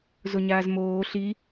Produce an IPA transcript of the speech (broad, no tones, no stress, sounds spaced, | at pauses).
z o ɲ aː z m oː ɬ i